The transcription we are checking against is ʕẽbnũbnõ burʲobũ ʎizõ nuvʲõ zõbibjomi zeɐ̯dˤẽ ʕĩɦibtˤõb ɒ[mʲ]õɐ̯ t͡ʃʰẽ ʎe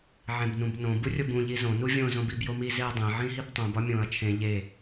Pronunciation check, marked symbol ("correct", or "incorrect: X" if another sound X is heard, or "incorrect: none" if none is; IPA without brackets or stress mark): correct